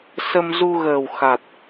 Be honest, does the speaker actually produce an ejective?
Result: no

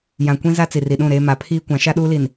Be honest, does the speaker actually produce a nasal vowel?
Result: yes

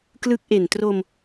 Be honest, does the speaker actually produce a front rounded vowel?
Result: no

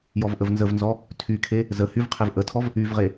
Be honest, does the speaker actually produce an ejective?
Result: no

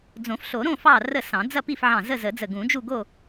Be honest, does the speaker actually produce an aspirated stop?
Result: no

